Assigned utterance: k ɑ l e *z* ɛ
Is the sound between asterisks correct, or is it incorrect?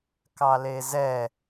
correct